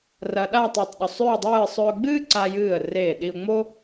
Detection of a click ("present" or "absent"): present